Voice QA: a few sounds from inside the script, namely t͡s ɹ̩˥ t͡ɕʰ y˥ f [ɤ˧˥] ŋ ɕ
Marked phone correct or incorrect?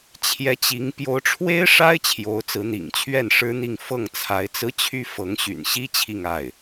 correct